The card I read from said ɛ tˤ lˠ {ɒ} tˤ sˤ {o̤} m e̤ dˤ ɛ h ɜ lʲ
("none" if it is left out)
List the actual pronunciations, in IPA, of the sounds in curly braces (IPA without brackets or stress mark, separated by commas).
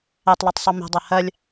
ɑ, o